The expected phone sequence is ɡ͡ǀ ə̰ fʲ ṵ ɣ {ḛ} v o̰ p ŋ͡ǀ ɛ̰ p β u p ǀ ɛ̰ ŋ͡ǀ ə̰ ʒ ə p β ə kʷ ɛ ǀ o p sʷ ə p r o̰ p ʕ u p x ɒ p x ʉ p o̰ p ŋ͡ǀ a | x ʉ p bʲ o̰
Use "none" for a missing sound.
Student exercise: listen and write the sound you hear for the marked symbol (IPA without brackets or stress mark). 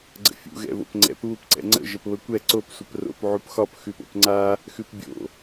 ɛ̰